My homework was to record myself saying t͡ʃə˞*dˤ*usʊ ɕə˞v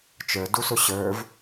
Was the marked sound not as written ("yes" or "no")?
yes